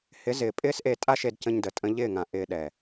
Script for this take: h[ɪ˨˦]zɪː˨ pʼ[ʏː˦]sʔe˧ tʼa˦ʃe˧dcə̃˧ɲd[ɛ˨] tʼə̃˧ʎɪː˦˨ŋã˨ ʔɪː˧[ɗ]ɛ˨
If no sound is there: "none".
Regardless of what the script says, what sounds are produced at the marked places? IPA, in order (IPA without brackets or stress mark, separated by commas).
ɪ˨˦, ɪː˦, ə˨, ɗ